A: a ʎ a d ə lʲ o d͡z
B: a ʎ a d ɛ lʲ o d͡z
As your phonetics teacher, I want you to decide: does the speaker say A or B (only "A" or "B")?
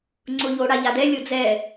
B